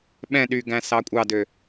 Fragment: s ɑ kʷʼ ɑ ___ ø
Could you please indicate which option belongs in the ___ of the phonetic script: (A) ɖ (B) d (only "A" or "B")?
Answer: B